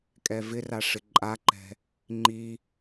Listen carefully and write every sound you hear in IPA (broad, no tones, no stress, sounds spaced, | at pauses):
kʼ ɛ v ɪ r a ʂ ɪ ǃʼ a ǃ ɛ̤ | ŋ͡ǃ i